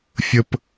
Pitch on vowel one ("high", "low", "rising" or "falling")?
high